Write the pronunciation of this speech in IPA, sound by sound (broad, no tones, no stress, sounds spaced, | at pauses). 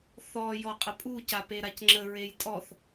θ ɔ j ɔ qʼ ə pʼ u c a p e ɾ a c ŋ͡ǁ ə ɹ e j tʼ ɔ θ